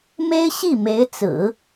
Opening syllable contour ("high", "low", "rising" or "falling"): high